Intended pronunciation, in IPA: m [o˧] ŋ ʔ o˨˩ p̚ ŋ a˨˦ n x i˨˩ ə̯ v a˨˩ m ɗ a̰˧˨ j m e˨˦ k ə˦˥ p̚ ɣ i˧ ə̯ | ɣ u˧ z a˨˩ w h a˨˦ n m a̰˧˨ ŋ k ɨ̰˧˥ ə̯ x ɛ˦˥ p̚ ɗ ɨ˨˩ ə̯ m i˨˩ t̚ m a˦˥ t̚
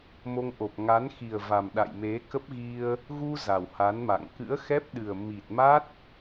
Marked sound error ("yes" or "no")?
no